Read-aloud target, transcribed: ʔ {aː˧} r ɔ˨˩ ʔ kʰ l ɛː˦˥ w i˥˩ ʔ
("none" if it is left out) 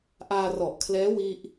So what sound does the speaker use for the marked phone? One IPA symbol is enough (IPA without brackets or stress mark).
aː˧